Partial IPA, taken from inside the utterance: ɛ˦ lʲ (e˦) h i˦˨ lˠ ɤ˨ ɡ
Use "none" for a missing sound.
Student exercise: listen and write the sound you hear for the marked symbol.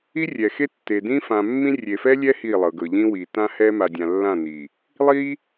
ɛ˦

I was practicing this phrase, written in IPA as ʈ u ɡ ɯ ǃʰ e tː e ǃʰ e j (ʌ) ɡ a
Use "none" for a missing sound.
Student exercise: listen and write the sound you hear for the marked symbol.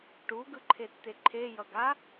ʌ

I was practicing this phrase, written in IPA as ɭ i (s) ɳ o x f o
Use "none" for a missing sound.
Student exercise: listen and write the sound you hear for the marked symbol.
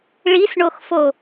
s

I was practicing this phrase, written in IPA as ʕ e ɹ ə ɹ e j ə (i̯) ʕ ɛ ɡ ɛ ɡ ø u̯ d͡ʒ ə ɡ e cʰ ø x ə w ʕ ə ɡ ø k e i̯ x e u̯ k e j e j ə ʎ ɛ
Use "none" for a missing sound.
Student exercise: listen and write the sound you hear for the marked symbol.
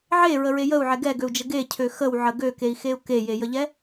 u̯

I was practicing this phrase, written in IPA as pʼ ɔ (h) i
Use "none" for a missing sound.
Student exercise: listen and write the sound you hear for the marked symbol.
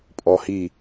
h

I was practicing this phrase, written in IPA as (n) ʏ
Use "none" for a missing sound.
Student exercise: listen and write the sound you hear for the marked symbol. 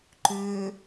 ǃ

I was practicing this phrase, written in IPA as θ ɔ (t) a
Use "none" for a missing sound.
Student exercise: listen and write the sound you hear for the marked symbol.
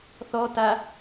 t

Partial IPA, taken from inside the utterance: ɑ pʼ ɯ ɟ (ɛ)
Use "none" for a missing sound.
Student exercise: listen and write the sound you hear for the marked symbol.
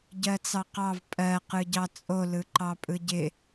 ɪ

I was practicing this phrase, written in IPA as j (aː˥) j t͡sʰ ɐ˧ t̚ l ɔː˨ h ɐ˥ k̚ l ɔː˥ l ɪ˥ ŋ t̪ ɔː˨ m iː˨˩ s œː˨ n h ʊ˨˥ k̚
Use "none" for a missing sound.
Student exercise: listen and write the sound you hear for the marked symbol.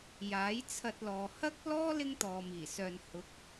aː˨˥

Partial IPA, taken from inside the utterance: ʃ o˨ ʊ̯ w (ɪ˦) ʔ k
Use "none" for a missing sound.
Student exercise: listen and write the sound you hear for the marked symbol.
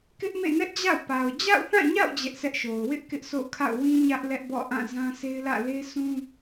ɪ˦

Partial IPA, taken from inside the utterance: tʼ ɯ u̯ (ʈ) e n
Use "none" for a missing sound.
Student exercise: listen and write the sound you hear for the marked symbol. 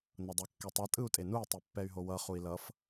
tʼ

